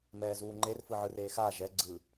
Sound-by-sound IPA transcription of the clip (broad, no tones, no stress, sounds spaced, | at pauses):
m ɛː z uː ŋ͡ǃ e r f ɯ ʕ ɯ r eː x aː ʒ ɛ ɡ͡ǀ ɯ